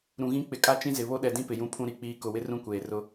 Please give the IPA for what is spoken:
ɾ ũ˨ ɣ ĩ˦ k͡p ɪ˨ kʼ a˦ t͡ʃ ĩ˦ z ɪ˨ β o˦ ɗ ɛ˨ d ĩ˦ p ɪ˨ j ũ˦ pʰ ũ˦ ɾ i˨ k͡p iː˦ k ʊ˨ w ɪ˦ r ũ˦ kʷ eː˨ r ʊ˦

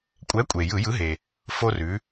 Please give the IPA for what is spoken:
kʷʼ ɛ˨˥ kʷʼ e˩ j ɯ˧˩˧ j ɯ˨˥ ɦ e˩ | f o˧ r ʉ˩˧

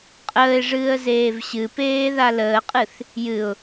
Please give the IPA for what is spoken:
qʼ əː ɪ̯ ʐ ɨː ə̯ z eː v ɕ ɨ p eː ð a l əː qʼ ɨ θ | j ɨ ʊ̯

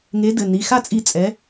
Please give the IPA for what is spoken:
ŋ e˨˥ d ɘ˩˧˩ n i˩˧˩ x a˥˨ t͡sʼ i˧˩ t͡sʼ ɛ˨˥

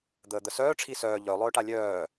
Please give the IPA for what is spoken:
d̪ əː d̪ ə s œː ʈ͡ʂʰ i s œː ʎ œ lˠ œː ʈ a lʲ œː

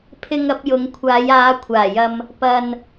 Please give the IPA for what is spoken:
pʰ ɪ˨ ŋ ɐ˧ p̚ j ʊ˨˧ ŋ kʷʰ aː˨˧ j aː˨˧ kʷʰ aː˨˩ j ɐ˧ m | p ɐ˧ n

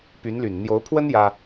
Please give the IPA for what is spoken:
p y˧˥ n l y˨˩ n n̪ j o˧˥ ʊ̯ pʰ w ə˥ n j ä˥

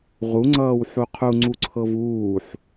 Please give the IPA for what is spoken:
ʁ u ŋ͡ǀ ʌː w ħ u qʰ u ŋ͡ǀ u ǀʰ ɤ v uː ħ

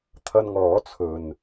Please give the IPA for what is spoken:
t̪ʰ ɐ˧ n ŋ ɔː˨˥ t͡sʰ ɵ˨ n

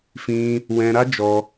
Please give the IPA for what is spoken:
f ĩ˦ | w ɛ̃˧ ɾ a˦ d͡ʒ ɔ˧

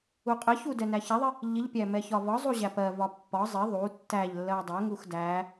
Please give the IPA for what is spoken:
u qʼ ɪ ç u d ɛ n æ ç ɛ ðˤ ɪ | ʎ ɪ ʎ pʲ æ m ɛ ç ɒ v ɒ zˤ u ʑ æ p ɜ v ɒ pː ɒ zˤ ɪ ðˤ u tː æ ʎ lː ɜ dˤ ɜ ŋ u x d æ

